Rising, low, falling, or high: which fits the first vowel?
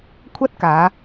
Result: high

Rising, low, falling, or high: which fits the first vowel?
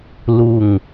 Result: falling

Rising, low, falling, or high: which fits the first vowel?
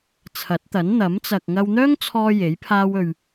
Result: rising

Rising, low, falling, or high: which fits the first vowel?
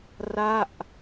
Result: falling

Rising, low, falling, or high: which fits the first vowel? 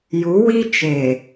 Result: rising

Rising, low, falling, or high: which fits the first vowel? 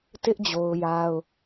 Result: high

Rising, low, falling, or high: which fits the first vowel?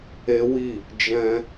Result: high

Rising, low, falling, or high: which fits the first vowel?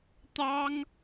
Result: high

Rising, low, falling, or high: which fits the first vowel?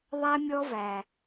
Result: high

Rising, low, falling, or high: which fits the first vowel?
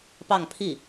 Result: falling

